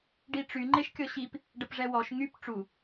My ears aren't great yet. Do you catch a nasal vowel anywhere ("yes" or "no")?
no